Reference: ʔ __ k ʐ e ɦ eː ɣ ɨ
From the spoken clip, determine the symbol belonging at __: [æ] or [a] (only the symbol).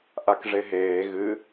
a